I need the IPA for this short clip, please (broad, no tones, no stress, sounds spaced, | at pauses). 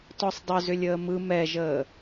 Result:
t ɔ sˤ dˤ ʏ z ʏ lʲ əː m ɯ m ɛ ʒ əː